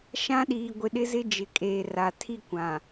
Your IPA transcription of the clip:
ʃ ã˦ ɗ iː˨ ɡʷ ɪ˨ ɗ ɪ˦ z ɪ˦ d͡ʒ ɪ˨ kʼ eː˨ r a˨ tʰ i˦ kʷ ã˨

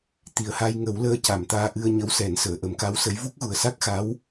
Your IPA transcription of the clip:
t̪ i˨˩ ə̯ h a˧ j ŋ ə˨˩˦ w l əː˧ c a˨˩ m t̪ aː˧ ʔ ɨ˧ ə̯ ɲ ə˧˥ w s ɛ˨˩˦ n s əː˨˩˨ ʔ ə˨˩˦ m k a˧˥ w s ə˧˥ j v u˦˥ k̚ ɣ u˨˩ ə̯ s a˦˥ k̚ x a˧˥ w

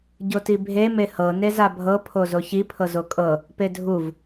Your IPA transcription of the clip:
ɟ o t i bʱ e m e h ɤ n e z a bʱ ɤ pʰ o z o ç i pʰ ɤ z o kʼ ɤ | p e dʱ u v

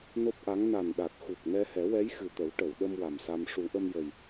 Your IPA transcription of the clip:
n o˦˥ p̚ ʔ a˧˥ ŋ n a˨˩ n ɗ a˨˩ t̚ x u˨˩ k̚ n ɛ˧ h ɛ˨˩˦ w ɛ˧˥ j x ɨ˨˩ t̪ ə˨˩˦ w ʈ ə˨˩˨ w ɗ ə˧ m w a˨˩ m s a˧ m ʂ u˨˩˦ ʔ ə˧ m j ə˨˩ j

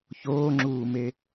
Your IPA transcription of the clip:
ç oː ŋ͡ǁ uː m e

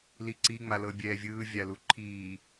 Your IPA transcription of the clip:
l i ǀ i ŋ͡m a l ɤ bʲ ɛː vʲ ɯː vʲ a l u ǃʰ iː

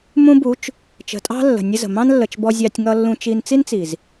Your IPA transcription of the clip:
m ũ˧ b u˨˦ t͡ʃ | t͡ʃ ə̤˨ tʼ ɑ̤˦ lː ə̤˨ nʲ ə˦ z ə̤˨ m ɑ̃˦ n lː ə˨ t͡ʃ b ɔ˧ zʲ ɑ˧ tʲ ŋ ʌ˧ lː ũ˧ t͡ʃ i˧ n t͡s i˦ n t͡s i˨ z

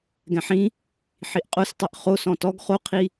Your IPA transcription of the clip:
ɡ ɛ̃ ħ ĩ | ħ i ʔ qʼ o s tˤ ɘ ʔ χ o s ɔ̃ t ɔ ɡ χ o qʰ i

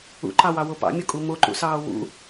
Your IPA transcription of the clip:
ṵ ǃ ɑ w ɑ w o p ɑ̰ mʲ o kʼ u m o ǃ ṵ s ɑː w ṵ

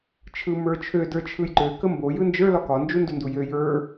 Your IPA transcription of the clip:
t͡ʃʰ ɯ m ə˞ t͡ʃʰ ø d ə˞ t͡ʃʰ ɯ j ǃ ø k ə m b o j ɯ n d͡ʒ ə˞ l ɒ k ɒ n d͡ʒ u n d u n d u j ø j ə˞

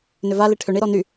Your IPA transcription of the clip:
n ʏ v a l i ʈʰ ʏ ɳ i ɾ ɔ n y

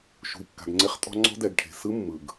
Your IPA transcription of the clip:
ʃ ṳ˩ i̯ kː a̤˩ ɡ ŋ͡ǀ e˧ χ tʼ ɔ̤˧ ŋ͡ǀ ɔ̤˧ d ɛ˩ ɡ ʈʰ e̤˩ s ɯ˧ mː ɯ˩ ɡ

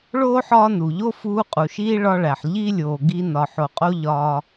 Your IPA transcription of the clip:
ɭ oː˥ ħ ɒː˦ n u˩ ʎ o˥ f uː˦ qʼ u˨ ʃ iː˥ ɭ ɒ˦ ɭ æ˨ ħ ʎ i˥ lʲ oː˨ ɡ i˦ n ɒ˨ ħ o˨ qʼ o˦ ʎ ɒː˦

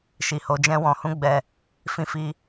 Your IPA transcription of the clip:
ʃ i˨ h o˨˦ d͡ʒ ɛ̃˦ w ɔ̃˧ h ũ˦ ɡ͡b ɛ˧ | f ĩ˧ f i˧

